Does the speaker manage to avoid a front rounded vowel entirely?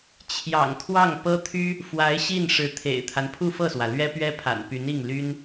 no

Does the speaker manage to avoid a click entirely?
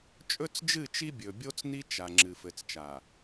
no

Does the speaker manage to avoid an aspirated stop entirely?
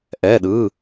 yes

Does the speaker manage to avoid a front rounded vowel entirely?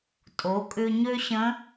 no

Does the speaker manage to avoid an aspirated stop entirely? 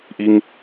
yes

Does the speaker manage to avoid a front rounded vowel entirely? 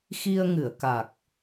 yes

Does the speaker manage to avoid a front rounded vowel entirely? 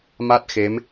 yes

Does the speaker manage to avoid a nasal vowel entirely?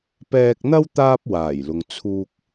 yes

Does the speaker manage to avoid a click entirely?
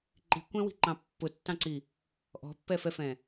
no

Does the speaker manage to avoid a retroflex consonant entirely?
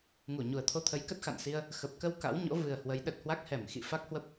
yes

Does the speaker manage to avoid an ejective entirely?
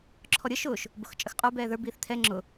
no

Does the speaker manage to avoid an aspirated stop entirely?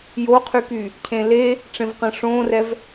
no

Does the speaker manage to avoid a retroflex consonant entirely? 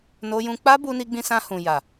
yes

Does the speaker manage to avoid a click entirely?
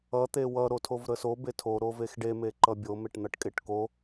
no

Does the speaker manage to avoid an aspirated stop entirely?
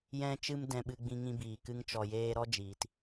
yes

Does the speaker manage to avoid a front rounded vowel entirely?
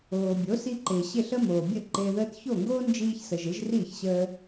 yes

